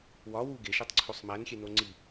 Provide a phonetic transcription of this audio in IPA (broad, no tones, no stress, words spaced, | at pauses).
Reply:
wɒwu ɡeʃetˤǀʰosˤ mænxʲeno ŋ͡ǀi